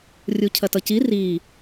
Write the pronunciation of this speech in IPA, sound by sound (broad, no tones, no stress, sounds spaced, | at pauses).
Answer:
rʲ u cʰ ɐ t ʌ c i r i